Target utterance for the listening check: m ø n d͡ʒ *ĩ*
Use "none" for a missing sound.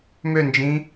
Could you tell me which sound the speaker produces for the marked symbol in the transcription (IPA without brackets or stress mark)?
ĩ